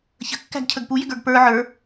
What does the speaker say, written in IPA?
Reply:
çə̤kːæ̤ɡcʰəɡ pujɪɡə˞ɡ pə˞ ʕə˞

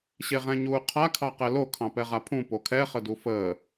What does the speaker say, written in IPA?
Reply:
ɕeʁɛ̃ɲuːqʰa kʰɑqɛlo kʰɑ̃pɛʁapʰũ pokʰɛ χədufəː

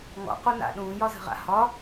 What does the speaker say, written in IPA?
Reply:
ŋɔ̰qona̰ ɗũːjɒzə̤ʁa̰ hɒ

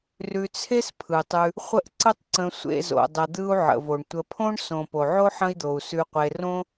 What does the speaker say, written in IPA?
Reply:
rʉ˨t͡sʰe˥s pʰɯ˩tˤʉ˨ | χʷə˦ʔǀə˦tˤǀə̃˨ sʷḛ˨zo̰˩dˤə˩ d̪ɯ˥u̯ʕə̰˩vo˩ɳ tʷə˨pʰõ˥ɳ sõ˩ po˩ʕo˥ħə̃˦i̯d̪o˩u̯ sʉ˨qʷe˨ rõ˥

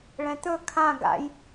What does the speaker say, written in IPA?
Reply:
ɭɛ̃t̪ɵ kʰã ɡa̰j

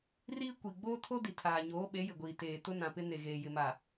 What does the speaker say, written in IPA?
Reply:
riː˦kʷi˨ ɡ͡boː˦tʰo˦di˨ tʰaː˨ɲoː˨˦ ɓe˨˦jɪ˨ɡʷiː˨ teː˨tʊ˦nã˨pɪ˦ ne˨ɣeː˨ jɪ˨ma˨

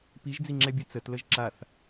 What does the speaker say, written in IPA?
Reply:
piʒd͡ziŋ͡ǁɛbʲʉ t͡sətləʒ ǁaθ

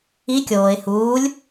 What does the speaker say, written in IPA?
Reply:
i kʲoːɪ̯ huːlʲ

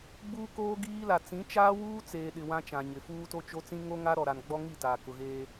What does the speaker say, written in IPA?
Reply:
ɡ͡buː˦koː˦ɡiː˦la˨ t͡sĩ˨˦t͡ʃaː˦wuː˦ t͡seː˨ɗɪ˨ wã˦t͡ʃã˨ɲɪ˨ fuː˦to˦ t͡ʃo˦t͡sĩ˦ ŋo˦ ŋa˦ɾɔ˨ ɾa˨nɡ͡bɔ˦ŋi˦˨ taː˨kʊ˨ɣeː˦

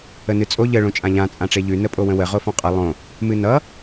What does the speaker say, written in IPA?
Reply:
ənɨt͡sʼo ʎə ɭõt͡ʃʼãʎã t͡sʼãʈ͡ʂeʎʉ nəpʼowə̃wə ʁofɔ̃qʼə lˠõ | mɨnʌ

